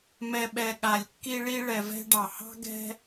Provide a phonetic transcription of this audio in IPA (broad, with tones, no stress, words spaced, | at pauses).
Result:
mɛ˨ɓɛ˨ ɠa˨lʲkːi˦ɭi˦ ɭɛ˨vɛ̤˦ɖɑ˩hɑ̤˥ ɡɛ̤˦